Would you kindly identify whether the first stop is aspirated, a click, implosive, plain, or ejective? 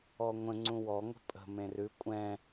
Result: click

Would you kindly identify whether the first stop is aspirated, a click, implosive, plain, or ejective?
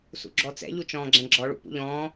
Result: click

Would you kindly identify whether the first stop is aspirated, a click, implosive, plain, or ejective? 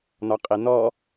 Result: ejective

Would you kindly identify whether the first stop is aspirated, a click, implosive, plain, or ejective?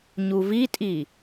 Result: ejective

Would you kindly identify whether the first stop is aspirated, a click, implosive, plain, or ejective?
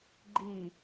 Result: click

